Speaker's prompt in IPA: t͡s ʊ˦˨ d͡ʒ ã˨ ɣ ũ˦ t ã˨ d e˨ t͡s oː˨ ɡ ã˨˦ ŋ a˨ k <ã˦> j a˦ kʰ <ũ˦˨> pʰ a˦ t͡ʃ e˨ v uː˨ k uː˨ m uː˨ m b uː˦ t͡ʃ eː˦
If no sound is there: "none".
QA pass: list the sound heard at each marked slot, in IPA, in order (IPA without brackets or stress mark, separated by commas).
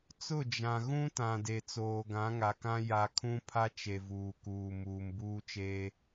ã˦, ũ˦